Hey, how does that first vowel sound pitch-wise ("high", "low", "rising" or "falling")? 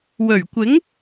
low